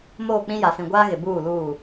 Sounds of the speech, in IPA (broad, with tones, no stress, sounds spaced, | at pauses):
m oː˦˨ k͡p ĩ˦ j a˨ s ĩ˨ ɡʷ aː˦ ɣ ɪ˨ b uː˦˨ l uː˦˨